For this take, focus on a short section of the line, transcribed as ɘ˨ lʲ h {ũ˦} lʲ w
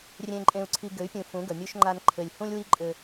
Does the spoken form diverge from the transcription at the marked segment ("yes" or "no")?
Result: no